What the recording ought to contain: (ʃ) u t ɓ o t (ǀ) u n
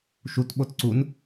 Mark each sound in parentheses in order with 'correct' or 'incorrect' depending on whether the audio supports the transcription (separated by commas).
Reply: correct, correct